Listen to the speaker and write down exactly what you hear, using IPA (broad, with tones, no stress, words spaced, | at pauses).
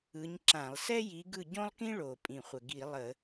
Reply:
ɯ˨˦ɲ ǁã˧˩˧lˠ sɛ˥ji˨˦ɡɯ˦˨ ɟõ˥lˠkĩ˥ɭo˨˩ pʼĩ˨˩χʷə˨˩ ɡi˧˩˧lˠə˧˩˧